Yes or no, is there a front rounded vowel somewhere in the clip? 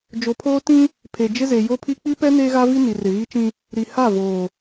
no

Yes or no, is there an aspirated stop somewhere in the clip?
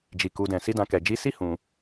no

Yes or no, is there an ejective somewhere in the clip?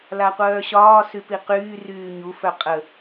yes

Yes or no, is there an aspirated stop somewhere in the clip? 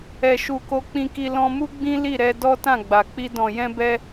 no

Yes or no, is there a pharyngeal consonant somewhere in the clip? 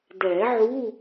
yes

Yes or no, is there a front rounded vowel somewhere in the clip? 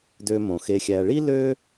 yes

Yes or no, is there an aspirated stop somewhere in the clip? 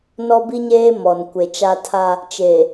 yes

